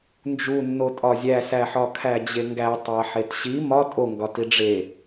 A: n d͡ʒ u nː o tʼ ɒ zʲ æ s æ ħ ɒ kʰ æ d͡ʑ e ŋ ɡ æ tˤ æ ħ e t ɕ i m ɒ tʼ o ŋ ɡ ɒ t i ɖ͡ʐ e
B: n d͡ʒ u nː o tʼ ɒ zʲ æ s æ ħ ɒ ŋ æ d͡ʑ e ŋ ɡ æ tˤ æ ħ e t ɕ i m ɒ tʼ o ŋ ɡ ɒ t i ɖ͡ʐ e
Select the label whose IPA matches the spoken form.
A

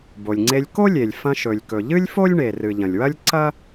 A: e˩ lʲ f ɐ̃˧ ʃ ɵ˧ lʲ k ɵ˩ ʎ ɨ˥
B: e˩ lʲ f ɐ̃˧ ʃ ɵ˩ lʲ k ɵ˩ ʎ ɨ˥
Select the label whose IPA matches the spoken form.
B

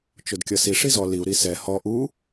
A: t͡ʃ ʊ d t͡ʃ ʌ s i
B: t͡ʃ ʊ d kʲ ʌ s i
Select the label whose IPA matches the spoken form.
B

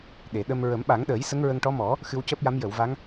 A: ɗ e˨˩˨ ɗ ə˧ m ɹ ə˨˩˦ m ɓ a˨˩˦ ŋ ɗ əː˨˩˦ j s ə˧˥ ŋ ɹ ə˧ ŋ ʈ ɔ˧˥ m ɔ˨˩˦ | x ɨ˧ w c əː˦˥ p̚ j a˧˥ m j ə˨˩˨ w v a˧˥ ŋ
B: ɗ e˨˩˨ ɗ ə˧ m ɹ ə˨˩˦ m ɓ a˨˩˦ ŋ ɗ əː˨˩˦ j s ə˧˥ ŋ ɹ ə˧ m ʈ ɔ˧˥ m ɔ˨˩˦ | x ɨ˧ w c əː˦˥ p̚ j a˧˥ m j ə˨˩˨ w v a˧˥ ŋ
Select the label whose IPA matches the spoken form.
A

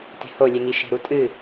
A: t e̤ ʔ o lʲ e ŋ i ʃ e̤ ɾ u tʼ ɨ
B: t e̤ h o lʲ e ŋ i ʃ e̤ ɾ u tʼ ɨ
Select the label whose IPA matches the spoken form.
B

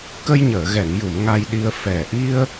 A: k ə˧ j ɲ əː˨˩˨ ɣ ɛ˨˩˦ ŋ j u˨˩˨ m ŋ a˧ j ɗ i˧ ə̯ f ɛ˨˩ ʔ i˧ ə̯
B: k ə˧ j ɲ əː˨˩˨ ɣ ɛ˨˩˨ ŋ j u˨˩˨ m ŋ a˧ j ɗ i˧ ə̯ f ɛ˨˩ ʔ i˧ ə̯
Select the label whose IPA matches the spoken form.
B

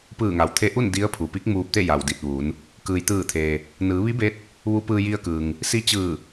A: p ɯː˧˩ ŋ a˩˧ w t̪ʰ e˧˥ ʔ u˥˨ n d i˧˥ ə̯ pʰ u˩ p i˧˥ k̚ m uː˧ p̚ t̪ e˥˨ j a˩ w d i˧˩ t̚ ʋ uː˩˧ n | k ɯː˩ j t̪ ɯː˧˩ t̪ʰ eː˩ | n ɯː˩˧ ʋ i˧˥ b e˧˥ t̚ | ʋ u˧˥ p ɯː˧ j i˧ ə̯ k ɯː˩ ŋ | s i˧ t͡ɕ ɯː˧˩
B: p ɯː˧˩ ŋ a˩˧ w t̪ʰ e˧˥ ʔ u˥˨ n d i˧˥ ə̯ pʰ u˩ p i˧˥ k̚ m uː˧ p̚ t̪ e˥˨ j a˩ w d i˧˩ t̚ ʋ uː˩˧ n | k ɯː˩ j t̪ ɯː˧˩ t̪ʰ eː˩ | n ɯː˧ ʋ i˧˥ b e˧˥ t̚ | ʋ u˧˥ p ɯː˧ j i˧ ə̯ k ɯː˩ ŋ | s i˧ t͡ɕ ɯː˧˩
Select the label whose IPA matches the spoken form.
A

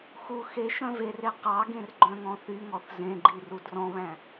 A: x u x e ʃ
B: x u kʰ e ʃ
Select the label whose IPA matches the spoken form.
A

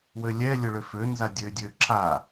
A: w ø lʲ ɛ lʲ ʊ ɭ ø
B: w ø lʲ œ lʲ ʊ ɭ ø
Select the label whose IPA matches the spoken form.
A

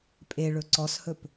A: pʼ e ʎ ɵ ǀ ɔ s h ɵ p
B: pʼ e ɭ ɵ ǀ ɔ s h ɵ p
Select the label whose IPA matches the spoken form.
B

